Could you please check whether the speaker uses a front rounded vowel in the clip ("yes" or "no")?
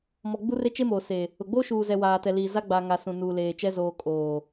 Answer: no